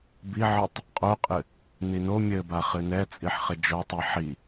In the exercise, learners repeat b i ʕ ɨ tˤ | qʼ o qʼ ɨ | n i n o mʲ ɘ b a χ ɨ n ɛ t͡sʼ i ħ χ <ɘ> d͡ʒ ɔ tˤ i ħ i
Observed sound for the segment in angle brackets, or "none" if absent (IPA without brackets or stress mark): ɘ